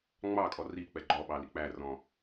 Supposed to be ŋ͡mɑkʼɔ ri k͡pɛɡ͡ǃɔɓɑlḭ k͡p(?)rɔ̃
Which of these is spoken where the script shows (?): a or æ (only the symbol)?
æ